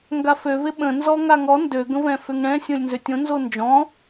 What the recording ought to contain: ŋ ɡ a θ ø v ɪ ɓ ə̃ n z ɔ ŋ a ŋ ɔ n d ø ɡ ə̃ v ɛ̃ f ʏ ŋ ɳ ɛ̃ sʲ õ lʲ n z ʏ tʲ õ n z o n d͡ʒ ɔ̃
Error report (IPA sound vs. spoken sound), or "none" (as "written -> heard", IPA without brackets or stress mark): θ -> f